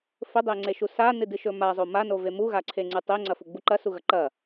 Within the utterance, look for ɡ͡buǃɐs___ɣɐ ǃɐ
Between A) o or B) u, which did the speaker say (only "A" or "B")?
B